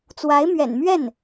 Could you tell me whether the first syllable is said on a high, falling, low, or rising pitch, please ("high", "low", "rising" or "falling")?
rising